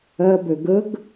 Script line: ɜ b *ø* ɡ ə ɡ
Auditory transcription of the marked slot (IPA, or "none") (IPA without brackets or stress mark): ø